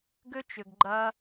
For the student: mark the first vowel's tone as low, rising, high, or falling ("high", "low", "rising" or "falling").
high